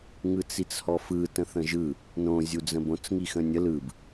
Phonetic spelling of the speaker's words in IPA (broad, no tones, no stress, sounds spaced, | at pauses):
ŋ ɯ t͡s i t͡s h ɔ f ɯ t ə̃ θ ə̃ ʒ ɯ | n õ zʲ u d͡z ə̃ b õ t͡s ŋ i x ə̃ nʲ ə l ɯ b